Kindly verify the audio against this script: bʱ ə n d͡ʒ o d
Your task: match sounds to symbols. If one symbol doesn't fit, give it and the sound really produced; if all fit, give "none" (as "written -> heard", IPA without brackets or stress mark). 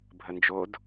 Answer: none